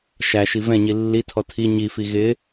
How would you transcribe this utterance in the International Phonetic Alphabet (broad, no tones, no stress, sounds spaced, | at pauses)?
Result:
ʃ æ ʃ i v ɛ̃ ɲ i lː i tʰ ɔ tʰ i ɲ i f i ɣ ɪ